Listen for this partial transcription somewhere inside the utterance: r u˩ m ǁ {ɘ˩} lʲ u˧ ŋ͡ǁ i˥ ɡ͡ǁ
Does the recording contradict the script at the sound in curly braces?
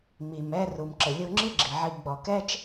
no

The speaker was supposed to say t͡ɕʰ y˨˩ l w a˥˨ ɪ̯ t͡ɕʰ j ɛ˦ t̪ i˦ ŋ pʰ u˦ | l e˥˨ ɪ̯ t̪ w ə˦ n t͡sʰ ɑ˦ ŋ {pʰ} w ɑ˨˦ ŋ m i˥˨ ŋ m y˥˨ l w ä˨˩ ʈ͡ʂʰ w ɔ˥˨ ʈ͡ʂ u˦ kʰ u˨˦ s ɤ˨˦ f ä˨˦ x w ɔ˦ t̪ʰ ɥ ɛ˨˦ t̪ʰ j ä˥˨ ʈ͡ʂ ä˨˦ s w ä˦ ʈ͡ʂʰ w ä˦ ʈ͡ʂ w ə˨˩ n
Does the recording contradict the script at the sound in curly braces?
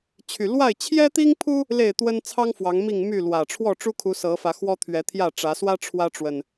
yes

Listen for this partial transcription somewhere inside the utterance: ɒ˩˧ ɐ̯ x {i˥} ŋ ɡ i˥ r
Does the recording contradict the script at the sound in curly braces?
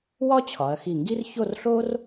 yes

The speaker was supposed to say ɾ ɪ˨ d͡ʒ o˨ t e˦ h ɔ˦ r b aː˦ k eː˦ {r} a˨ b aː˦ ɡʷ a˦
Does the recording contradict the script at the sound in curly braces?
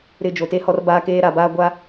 yes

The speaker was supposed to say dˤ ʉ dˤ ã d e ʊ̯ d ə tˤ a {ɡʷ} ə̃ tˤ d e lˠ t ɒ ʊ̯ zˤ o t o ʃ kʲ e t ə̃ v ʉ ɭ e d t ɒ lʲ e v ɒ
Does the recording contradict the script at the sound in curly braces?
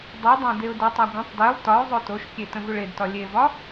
no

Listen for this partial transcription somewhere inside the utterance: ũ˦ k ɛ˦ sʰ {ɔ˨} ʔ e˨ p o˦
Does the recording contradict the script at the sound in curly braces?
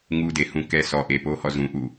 no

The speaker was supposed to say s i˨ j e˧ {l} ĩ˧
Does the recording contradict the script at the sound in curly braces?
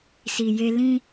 no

